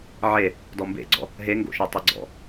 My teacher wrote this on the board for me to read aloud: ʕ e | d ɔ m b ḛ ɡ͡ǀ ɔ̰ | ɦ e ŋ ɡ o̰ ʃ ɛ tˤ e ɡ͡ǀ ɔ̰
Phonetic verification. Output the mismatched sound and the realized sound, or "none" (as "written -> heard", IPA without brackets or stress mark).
none